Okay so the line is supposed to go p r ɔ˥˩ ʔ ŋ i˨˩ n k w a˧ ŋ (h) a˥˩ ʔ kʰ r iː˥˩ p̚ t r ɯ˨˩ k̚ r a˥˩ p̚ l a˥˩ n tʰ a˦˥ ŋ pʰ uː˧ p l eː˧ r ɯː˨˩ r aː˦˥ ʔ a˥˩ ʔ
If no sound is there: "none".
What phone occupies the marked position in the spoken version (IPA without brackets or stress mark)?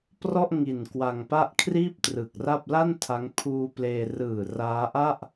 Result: p